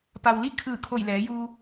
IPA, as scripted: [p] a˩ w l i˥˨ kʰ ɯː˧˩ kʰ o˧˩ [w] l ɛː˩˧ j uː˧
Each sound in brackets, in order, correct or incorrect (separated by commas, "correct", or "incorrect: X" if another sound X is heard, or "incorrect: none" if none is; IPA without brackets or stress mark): correct, incorrect: j